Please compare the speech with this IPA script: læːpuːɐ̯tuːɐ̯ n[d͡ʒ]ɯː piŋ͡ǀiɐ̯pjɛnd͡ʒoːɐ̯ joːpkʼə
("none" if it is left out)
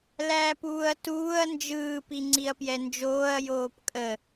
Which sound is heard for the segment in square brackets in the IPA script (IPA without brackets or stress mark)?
d͡ʒ